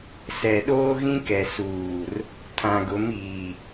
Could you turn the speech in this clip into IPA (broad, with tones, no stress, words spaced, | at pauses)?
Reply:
sɛ˨ɗoː˦ɣĩ˦kɛ˨ suː˨r | tʰã˨ɡʊ˨˦miː˨